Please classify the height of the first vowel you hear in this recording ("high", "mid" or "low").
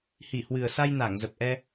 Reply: high